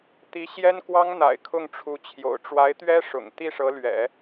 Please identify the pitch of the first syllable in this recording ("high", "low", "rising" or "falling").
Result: rising